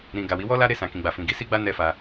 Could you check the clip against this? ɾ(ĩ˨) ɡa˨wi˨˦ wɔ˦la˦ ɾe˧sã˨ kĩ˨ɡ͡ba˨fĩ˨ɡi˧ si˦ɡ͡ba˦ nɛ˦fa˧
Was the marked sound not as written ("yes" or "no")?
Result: no